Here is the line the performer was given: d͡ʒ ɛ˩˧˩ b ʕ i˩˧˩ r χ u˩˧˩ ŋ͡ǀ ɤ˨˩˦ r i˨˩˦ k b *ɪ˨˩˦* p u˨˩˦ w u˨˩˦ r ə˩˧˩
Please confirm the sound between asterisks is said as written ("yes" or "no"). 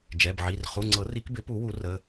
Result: yes